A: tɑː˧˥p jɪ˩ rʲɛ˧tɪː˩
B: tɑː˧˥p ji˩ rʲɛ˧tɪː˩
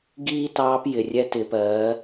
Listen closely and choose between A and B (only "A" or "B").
A